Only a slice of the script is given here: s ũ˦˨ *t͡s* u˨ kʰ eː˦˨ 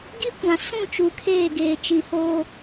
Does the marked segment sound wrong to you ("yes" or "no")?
yes